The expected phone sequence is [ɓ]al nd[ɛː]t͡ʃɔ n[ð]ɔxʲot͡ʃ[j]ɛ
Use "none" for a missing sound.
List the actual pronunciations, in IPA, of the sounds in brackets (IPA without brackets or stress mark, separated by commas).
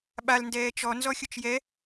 ɓ, ɛː, z, j